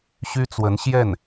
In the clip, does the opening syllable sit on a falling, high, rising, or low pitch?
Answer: high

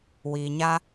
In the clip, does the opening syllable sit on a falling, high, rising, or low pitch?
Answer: low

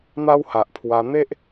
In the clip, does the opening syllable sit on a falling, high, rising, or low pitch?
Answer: high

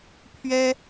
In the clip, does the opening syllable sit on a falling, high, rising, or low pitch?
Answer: high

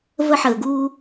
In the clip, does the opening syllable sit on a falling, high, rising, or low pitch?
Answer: high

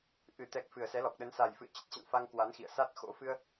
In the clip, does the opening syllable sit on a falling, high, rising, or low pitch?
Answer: low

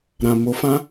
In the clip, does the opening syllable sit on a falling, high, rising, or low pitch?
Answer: low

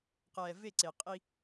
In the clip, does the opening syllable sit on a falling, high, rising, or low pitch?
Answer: low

